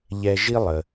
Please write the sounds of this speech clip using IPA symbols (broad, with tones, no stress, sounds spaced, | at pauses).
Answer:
ʎ ɛ˧ ʒ i˥ lˠ ə˩